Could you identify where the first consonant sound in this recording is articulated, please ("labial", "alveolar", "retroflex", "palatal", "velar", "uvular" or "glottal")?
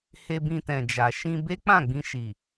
glottal